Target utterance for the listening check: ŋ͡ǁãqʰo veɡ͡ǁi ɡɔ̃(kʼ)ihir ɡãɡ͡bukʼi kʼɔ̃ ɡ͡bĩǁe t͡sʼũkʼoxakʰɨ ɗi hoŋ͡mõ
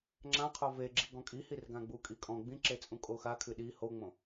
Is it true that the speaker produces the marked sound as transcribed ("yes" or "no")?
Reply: yes